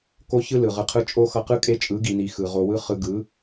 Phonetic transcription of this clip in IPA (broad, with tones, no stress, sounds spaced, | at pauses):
k o˦ ç ɯ˦ l ɯ˨ ʁ ɯ˧ qʰ ɯ˦ t͡ʃʼ o˦ x ʌ˧ q ɯ˦ kʼ e˦ t͡ʃʼ ɯ˨˦ ɡ i˨ n i˨ x ɯ˨ ʁ o˧ w ɯ˦ χ ɯ˧ ɡ ɯ˨˦